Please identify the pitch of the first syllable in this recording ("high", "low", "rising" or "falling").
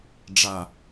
low